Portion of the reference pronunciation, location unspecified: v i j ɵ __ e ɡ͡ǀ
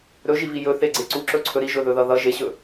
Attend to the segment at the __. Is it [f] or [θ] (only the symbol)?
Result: θ